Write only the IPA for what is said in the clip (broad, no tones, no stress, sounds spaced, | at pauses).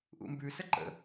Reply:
ʔ ṵ m b ʉ s ə ǃ ə̰